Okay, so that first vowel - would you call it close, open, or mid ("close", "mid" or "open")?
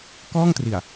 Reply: mid